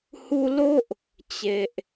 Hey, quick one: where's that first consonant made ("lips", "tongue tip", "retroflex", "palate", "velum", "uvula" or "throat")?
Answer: throat